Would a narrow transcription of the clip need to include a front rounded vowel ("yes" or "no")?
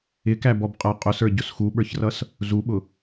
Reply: no